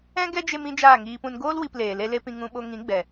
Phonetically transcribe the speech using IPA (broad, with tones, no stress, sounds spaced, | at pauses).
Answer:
ɛ̃˦ ɡ ɛ˦ d͡ʒ e˧ m ĩ˦ d͡ʒ aː˦˨ ŋ iː˧ p ũ˧ n ɡ oː˦ l w i˧ p l eː˨ l e˦ l e˦ p ĩ˧ ŋ ũ˧ ɓ o˧ ŋ ĩ˨˦ ɡ͡b ɛ˨